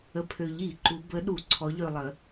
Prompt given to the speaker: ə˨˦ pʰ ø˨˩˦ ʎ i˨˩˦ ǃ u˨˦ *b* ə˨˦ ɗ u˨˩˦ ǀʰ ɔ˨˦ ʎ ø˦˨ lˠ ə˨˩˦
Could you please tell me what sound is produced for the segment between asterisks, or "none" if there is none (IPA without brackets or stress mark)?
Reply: b